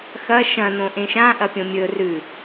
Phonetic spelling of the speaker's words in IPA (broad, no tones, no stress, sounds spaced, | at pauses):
x ɐ ʃ ɐ̃ n õ ʔ ẽ ʃ ã ʔ ɐ pʲ õ mʲ ɵ r ʉ